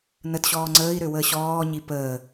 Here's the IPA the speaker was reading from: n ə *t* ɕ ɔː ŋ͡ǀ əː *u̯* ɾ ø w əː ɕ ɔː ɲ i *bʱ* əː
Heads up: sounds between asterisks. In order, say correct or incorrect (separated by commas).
correct, incorrect, incorrect